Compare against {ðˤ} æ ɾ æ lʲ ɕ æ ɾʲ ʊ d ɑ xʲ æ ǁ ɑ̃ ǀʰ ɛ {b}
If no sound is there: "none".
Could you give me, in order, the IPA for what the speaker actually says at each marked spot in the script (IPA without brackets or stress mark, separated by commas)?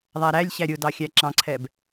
ðˤ, b